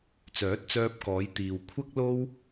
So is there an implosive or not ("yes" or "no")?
no